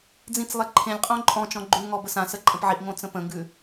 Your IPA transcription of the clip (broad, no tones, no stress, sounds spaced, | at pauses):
d͡z ĩ t͡s lˠ e ǃʰ ẽ lʲ qʼ õ ǃʼ ɔ̃ t͡ʃ ɔ̃ ɡ͡ǃ ʉ ŋ ɔ b ə s ã s ə ǃʼ ə̃ p ʕ i ʔ ŋ õ t͡s ə̃ p ə̃ ŋ ɡ ʉ